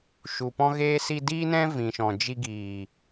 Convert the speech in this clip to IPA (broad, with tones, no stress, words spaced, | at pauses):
ʃu˨pɔ̃˦ɣeː˦ si˧diː˦nɛ̃˦ vĩ˨ʃɔ̃˨ d͡ʒi˧ ɡiː˨